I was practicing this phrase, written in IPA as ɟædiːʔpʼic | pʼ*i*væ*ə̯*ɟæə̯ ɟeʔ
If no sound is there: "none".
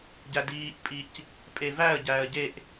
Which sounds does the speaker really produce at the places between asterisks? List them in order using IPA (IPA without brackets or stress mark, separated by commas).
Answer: e, ə̯